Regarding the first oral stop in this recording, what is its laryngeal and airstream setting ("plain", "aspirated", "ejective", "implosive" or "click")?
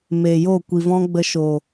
plain